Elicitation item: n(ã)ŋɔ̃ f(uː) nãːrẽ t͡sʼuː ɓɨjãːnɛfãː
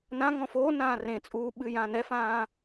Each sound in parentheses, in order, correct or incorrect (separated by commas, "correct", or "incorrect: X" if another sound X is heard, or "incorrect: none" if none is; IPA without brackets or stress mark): correct, incorrect: oː